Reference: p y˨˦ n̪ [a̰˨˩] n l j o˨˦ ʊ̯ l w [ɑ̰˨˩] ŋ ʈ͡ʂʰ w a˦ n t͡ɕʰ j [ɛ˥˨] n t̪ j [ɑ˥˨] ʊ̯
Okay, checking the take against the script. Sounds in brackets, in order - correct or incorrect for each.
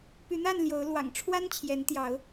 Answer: incorrect, correct, incorrect, incorrect

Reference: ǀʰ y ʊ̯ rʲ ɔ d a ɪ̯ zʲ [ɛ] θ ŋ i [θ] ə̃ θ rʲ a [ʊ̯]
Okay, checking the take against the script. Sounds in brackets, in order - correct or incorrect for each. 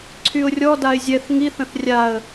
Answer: correct, correct, incorrect

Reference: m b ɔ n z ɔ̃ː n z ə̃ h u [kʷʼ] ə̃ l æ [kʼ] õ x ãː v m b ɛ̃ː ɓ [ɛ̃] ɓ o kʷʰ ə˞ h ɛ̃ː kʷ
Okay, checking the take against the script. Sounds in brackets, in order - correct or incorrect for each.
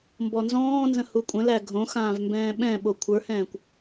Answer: correct, incorrect, correct

